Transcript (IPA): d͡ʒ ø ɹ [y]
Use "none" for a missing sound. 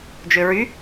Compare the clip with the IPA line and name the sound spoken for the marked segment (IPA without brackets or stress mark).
y